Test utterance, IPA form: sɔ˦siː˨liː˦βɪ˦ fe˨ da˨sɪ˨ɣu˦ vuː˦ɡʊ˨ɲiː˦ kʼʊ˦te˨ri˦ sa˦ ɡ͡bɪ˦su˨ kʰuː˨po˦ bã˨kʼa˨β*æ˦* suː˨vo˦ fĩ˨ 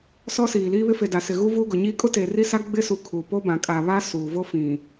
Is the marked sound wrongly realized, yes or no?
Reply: yes